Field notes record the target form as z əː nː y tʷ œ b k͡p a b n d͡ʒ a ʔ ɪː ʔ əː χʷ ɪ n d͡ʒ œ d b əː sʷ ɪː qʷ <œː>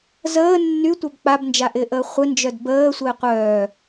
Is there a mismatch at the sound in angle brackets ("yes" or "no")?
no